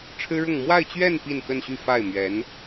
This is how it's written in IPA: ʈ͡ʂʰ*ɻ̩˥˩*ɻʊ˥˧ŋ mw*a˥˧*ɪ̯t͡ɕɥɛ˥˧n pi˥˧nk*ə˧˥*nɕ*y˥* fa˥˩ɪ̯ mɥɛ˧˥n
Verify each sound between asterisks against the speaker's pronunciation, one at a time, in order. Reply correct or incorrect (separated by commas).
incorrect, correct, incorrect, incorrect